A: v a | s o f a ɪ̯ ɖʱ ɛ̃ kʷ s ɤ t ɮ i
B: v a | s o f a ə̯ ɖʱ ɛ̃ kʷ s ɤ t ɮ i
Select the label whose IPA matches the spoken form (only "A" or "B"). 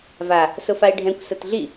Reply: A